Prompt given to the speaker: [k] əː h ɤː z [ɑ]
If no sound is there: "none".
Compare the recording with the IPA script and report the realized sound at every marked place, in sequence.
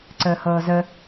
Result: ǀ, ə

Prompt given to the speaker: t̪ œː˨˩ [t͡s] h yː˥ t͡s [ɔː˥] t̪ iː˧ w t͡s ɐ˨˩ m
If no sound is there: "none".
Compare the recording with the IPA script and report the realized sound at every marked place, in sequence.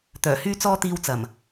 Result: none, ɔː˥

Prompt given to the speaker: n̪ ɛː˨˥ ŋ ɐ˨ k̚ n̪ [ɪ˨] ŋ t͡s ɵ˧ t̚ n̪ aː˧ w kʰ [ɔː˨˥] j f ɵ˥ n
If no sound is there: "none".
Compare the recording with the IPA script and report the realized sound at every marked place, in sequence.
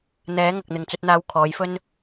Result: ɪ˨, ɔː˨˥

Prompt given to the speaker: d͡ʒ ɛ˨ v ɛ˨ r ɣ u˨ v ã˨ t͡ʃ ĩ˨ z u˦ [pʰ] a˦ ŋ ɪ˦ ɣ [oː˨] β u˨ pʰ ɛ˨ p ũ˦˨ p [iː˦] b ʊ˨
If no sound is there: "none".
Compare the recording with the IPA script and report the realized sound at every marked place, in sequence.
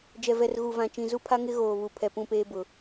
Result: pʰ, oː˨, eː˦

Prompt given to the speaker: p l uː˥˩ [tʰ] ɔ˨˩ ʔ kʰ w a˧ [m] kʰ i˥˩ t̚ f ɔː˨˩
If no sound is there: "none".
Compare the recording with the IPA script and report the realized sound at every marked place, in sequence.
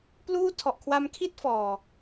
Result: tʰ, m

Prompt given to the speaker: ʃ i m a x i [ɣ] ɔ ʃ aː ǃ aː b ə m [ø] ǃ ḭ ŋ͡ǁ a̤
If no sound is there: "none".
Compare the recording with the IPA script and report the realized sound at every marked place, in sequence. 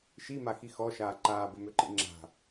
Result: x, ø

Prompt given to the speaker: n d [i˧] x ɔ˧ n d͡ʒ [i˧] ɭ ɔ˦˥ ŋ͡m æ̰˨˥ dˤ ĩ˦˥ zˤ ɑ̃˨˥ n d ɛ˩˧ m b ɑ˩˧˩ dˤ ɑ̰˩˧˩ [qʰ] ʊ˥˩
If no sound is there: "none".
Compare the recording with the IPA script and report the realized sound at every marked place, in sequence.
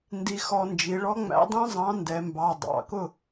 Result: i˧, i˩˧, k

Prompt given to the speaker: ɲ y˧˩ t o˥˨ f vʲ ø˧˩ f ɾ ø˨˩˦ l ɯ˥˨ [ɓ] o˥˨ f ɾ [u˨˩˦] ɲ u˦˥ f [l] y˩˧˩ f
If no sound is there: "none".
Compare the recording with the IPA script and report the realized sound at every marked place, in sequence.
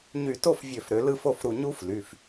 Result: f, u˧˩, l

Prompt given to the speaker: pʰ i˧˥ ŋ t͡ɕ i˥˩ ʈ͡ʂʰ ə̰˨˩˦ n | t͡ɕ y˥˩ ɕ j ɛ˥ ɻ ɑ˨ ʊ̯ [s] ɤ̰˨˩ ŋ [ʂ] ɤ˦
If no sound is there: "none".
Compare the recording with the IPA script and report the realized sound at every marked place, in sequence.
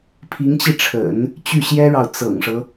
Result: t͡s, ʂ

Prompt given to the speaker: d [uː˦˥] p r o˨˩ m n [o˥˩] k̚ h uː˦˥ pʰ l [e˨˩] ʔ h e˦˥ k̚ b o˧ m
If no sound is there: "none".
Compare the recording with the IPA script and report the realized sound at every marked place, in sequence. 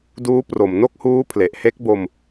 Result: uː˦˥, o˥˩, e˨˩

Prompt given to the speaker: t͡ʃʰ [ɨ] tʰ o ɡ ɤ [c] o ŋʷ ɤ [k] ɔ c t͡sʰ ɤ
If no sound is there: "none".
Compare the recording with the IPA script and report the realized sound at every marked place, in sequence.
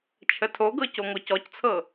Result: ə, c, c

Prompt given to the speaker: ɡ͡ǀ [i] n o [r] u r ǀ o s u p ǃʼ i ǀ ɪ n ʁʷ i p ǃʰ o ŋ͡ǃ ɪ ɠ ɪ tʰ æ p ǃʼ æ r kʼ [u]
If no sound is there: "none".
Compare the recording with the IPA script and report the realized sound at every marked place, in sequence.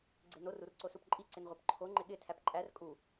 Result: e, r, u

